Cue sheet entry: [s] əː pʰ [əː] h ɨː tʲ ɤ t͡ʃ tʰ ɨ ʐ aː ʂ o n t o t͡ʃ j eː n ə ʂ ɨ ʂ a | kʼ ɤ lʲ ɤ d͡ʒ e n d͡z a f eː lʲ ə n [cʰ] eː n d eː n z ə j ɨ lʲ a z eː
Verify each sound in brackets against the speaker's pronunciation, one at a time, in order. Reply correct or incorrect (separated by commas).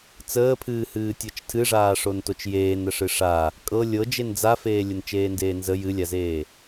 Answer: incorrect, incorrect, incorrect